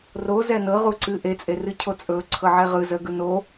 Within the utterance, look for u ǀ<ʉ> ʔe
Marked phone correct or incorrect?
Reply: incorrect